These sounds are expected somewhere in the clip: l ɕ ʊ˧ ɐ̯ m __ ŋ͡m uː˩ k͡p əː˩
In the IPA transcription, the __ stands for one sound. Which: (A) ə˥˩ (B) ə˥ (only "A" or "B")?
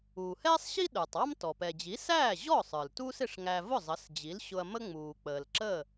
B